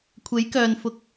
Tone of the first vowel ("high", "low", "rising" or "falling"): rising